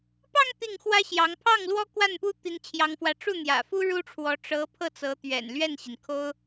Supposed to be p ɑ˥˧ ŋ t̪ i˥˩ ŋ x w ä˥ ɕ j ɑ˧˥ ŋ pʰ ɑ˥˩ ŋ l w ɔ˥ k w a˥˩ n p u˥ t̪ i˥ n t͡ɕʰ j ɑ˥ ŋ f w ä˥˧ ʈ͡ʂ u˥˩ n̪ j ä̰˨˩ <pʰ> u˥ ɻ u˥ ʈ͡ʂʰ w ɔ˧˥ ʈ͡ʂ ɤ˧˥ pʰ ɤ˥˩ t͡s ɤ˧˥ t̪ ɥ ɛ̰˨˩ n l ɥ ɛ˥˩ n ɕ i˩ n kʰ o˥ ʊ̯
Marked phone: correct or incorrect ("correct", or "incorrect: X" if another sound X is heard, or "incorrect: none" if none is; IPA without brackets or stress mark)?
incorrect: f